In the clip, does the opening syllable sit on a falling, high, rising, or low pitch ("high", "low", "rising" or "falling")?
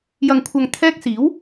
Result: low